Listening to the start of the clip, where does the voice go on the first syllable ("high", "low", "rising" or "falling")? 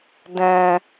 low